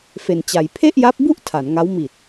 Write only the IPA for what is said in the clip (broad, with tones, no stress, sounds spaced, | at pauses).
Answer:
f e˧ n t͡ɕ a˧ j pʰ e˥˩ ʔ j a˦˥ p̚ b u˥˩ ʔ tʰ a˩˦ n ŋ a˦˥ w m i˨˩ t̚